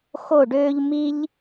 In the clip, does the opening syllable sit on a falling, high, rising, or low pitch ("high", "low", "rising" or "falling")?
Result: falling